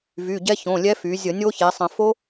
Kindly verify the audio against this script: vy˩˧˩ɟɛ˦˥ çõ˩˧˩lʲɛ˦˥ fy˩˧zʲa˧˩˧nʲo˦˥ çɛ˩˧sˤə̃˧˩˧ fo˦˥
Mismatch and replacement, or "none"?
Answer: a˧˩˧ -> ə˧˩˧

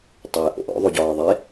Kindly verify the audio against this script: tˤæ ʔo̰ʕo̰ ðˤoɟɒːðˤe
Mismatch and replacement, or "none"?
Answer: ʕ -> ʔ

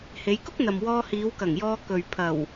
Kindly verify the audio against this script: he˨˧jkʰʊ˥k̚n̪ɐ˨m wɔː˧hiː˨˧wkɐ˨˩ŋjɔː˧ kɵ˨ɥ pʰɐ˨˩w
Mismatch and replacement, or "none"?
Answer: kʰ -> k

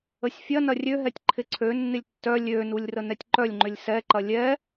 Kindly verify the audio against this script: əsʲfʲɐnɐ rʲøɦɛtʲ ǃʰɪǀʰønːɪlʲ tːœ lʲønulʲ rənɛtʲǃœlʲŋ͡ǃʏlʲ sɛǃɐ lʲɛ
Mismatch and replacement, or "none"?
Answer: none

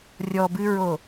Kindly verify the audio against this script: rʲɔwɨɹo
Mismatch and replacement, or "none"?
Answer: w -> b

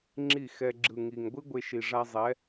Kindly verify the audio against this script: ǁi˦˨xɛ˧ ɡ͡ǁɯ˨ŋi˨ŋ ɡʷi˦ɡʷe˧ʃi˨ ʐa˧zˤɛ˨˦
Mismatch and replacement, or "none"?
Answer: ǁ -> ŋ͡ǁ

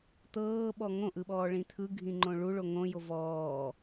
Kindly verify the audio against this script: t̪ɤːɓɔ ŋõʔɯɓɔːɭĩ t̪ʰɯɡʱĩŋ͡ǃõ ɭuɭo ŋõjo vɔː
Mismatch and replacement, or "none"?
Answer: none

